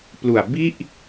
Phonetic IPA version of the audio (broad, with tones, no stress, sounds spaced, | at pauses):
p l u˨˩ a̯ b i˥˩ ʔ